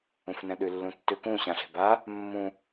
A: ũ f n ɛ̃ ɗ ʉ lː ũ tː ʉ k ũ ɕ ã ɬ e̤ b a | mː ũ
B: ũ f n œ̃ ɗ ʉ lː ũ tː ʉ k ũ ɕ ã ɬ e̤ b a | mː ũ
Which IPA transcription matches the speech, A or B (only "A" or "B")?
A